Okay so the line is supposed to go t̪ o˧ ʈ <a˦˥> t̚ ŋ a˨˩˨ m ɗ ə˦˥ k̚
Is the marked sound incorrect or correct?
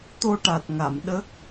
incorrect: a˨˩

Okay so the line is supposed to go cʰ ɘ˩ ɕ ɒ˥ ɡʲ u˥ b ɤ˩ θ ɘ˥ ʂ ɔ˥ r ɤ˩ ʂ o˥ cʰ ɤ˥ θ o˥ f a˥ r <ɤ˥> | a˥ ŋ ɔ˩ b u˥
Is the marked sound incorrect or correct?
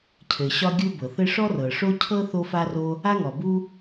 incorrect: o˥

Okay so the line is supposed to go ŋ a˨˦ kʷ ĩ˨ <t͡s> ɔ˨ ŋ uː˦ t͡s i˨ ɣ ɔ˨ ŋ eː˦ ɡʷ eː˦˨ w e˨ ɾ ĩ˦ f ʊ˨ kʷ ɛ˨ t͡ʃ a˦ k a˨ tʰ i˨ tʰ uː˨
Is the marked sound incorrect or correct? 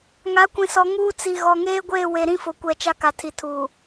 incorrect: s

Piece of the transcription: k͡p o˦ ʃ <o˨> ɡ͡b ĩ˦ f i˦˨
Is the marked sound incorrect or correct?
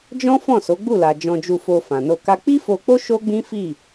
incorrect: o˦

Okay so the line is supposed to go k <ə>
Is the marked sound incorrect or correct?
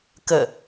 correct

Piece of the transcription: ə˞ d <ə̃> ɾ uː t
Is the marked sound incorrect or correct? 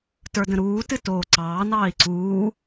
correct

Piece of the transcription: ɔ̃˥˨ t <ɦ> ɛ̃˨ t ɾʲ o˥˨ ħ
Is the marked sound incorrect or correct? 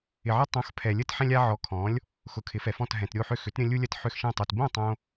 correct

